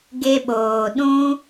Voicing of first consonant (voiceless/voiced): voiced